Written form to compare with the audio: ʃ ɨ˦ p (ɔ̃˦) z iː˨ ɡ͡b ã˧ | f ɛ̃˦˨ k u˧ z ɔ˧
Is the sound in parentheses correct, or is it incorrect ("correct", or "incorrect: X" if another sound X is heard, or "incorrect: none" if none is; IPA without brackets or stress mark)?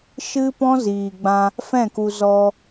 correct